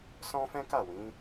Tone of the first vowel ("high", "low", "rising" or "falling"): high